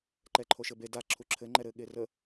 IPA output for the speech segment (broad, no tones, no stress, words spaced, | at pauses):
ǃɛǃʰoʃɘbe da ǁʰuǁʰɘ ŋ͡ǃɛɾɘ ɠerə